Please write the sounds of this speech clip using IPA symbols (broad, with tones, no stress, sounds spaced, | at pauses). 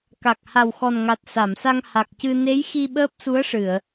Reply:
k a˨˩ k̚ h a˨˩ w x ɔ˨˩ n ŋ a˨˩ t̚ s a˨˩˨ m s a˧ ŋ h a˨˩ k̚ c ɨ˧ n e˧˥ j x i˧ ɓ əː˦˥ p̚ s u˧˥ ə̯ ʂ ɨ˨˩˨ ə̯